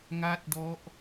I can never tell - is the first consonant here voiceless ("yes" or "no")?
no